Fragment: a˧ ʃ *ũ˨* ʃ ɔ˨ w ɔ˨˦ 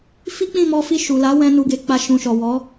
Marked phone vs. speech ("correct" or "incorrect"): correct